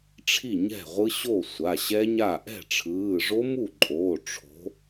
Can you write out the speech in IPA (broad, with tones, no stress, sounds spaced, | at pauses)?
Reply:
ʈ͡ʂʰ i˥˩ ɲ ɛ̤˥˩ ʁʷ ɯ˦˥ ɕ o˥˩ sʷ a˩˧˩ ɕ ɛ˦˥ ɲ a˥˩ ʔ ɛ̤˥˩ ʈ͡ʂʰ ɯː˩˧˩ ʐ o˦˥ m u˥˩ ǃʼ oː˩˧˩ ʈ͡ʂʰ o̤˨˥